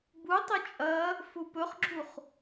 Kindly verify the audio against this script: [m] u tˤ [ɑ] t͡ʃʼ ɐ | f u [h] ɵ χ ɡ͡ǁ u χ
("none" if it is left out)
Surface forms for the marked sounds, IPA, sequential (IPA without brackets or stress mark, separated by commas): b, ɐ, p